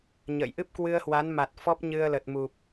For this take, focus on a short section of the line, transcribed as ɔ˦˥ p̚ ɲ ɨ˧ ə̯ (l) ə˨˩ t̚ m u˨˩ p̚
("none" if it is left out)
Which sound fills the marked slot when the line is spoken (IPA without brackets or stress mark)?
l